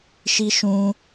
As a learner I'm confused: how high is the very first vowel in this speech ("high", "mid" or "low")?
high